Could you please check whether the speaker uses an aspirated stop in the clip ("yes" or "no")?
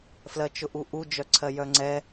yes